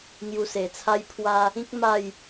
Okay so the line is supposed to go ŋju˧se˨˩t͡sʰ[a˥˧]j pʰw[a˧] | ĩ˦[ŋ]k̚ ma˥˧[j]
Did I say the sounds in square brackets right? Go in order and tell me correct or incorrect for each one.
incorrect, correct, incorrect, correct

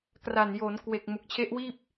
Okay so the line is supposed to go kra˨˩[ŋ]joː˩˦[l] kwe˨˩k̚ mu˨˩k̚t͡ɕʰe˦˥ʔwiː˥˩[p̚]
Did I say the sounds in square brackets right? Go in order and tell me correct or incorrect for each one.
incorrect, incorrect, correct

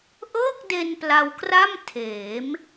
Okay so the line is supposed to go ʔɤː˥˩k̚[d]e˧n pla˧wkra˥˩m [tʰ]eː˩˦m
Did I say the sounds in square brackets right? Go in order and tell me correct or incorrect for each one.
correct, correct

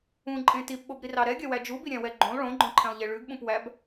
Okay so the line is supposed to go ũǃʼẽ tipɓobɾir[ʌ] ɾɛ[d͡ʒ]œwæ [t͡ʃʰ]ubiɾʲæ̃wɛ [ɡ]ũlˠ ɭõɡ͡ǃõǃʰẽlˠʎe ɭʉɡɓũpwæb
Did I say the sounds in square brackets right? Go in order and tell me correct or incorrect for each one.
incorrect, incorrect, incorrect, incorrect

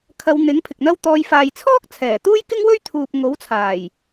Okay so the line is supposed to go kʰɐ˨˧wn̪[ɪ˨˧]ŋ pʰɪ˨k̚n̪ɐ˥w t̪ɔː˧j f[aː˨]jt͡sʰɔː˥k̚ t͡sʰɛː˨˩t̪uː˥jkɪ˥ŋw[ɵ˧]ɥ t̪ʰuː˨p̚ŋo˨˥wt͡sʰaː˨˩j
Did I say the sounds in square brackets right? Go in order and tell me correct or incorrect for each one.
incorrect, correct, incorrect

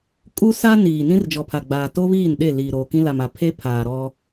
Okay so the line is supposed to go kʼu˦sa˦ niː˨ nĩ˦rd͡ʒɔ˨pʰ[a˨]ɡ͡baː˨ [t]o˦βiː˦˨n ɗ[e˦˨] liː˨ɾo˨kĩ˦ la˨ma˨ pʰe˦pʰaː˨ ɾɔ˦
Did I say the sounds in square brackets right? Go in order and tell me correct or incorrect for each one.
correct, correct, correct

